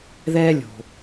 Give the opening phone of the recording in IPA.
ð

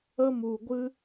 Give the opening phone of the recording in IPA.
ə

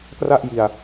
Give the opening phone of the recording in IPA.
k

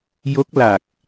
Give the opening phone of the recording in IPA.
j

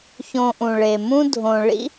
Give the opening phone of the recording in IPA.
ç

